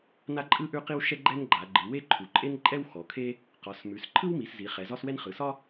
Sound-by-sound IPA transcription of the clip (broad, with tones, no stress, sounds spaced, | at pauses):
n a˥ ǃʼ ɯ˥ ʔ ʉ˥ q i˥ w ʃ ɛ˥ ɡ͡ǃ ɛ˥ n ɡ͡ǃ a˩˧ ɡ͡ǃ ɯ˩˧ w e˥ ǃʰ u˩˧ ǃʼ e˥ n ǃʼ ɛ˥ w x ɔ˩˧ kʰ e˥ | q ɒ˩˧ s m ʉ˩˧ s ǃʰ ɯ˥ w m i˩˧ s z i˩˧ χ ɛ˩˧ z ɒ˥ s w ɛ˥ n χ ɯ˩˧ s ɒ˥